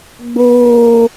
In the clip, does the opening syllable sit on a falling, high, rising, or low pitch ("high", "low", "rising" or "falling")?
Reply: high